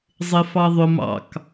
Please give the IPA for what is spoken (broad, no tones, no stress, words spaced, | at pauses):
zˤɪfɑðˤʊm ɑ̰k